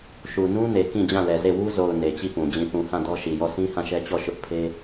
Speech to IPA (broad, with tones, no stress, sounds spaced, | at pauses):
ʃ u˨ n ũ˦ n e˨ k ĩ˦˨ d͡ʑ ã˦˨ l ɛ˨ z e˦˨ w u˦ z o˨ ʊ̯ n e˨ t͡ɕ i˦˨ p ũ˨ d͡ʑ ĩ˨ θ ũ˨ h ã˦˨ d ɔ˦ ʃ i˨ j ɔ˦˨ sʰ ĩ˦ h ã˦˨ ʃ ɛ˦ t͡ɕ ɔ˦˨ ʃ ʊ˦ ʔ pʰ e˦